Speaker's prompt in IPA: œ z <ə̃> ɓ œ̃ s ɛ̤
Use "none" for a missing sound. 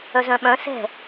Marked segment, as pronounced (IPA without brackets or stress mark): œ̃